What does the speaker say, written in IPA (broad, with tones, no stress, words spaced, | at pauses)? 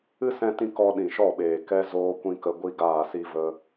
ɨ˦sɛ̃˧tĩ˧ kɔ˧ɗĩ˨ʃɔ˦˨ɓeː˨ kɛ˧ zoː˦kʷĩ˦kə˧ ɡʷi˦ɡaː˦˨si˦və˦